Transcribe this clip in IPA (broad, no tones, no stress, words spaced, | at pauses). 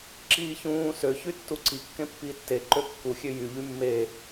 ǁiːçũː søçy tːuǀikːẽ pːiːtːeǃø kːuxʲø jy ʎymːe